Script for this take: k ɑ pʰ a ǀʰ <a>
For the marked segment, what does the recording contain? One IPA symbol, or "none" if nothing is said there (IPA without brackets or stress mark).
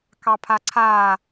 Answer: aː